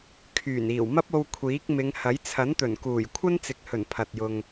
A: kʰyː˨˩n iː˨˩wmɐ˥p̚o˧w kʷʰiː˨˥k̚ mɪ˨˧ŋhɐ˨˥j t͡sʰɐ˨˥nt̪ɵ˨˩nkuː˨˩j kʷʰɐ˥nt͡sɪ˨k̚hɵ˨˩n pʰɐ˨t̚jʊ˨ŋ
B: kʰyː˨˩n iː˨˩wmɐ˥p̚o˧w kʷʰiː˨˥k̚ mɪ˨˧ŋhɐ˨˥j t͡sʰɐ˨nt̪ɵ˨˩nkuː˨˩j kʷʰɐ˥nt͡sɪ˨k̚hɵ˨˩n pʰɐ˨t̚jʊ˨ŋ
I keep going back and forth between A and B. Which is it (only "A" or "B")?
A